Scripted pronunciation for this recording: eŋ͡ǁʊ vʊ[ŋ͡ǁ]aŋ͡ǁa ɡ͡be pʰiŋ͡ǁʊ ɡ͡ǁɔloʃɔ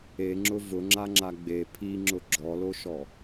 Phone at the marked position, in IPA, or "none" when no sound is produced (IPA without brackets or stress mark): ŋ͡ǁ